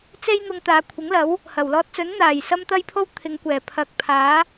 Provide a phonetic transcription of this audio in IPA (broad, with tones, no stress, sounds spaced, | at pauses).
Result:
t͡s e˥ j n̪ ʊ˧ ŋ t̪ aː˨˧ kʷʰ ɪ˨˥ ŋ l ɐ˨˥ w | h ɐ˨˩ w l ɔː˧ t̚ t͡s ɵ˨˥ n n̪ aː˨˩ j s ɐ˥ m t̪ ɐ˥ j pʰ o˥ w t̪ʰ ɪ˨˧ ŋ kʷ ɛː˨˩ pʰ ɐ˨ k̚ pʰ aː˨˥